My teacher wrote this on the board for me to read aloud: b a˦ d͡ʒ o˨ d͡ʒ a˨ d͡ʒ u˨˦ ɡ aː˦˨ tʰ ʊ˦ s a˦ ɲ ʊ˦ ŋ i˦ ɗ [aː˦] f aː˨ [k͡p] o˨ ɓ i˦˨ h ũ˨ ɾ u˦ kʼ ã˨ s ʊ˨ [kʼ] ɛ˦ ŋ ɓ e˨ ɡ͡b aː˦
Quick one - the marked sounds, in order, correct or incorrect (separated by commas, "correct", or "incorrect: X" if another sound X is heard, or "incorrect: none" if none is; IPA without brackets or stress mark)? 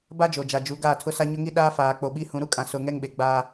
correct, correct, incorrect: ŋ